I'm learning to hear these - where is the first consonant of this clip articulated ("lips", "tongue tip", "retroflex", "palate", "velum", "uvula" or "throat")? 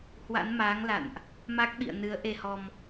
throat